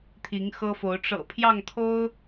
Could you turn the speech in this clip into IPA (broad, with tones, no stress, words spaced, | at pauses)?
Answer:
t̪ʰi˨˦ŋxɤ˦fo˨˦ʊ̯ ʈ͡ʂɤ̰˨˩pʰjɑ˥˨ŋt̪ʰo˦ʊ̯